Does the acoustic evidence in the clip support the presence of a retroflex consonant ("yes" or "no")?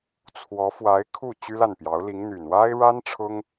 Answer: yes